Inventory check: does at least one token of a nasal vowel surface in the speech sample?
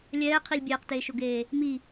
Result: no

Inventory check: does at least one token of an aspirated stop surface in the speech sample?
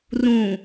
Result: no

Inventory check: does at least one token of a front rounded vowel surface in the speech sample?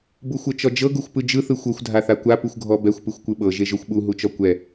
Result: no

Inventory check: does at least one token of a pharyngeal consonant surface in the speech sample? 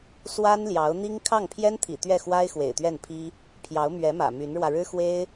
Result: no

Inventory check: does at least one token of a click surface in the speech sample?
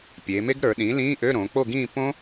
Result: no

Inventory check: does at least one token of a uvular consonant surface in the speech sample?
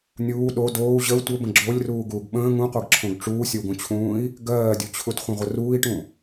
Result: yes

